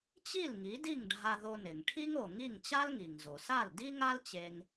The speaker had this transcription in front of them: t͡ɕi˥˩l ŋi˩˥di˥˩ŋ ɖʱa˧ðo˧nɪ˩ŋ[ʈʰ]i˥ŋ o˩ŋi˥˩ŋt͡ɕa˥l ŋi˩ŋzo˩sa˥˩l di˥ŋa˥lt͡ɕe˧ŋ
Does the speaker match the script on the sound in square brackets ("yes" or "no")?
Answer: yes